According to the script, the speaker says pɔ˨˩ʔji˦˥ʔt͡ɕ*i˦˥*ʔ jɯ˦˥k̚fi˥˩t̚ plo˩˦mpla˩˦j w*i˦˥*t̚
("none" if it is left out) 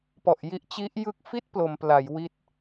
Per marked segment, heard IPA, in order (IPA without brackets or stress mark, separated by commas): i˦˥, i˦˥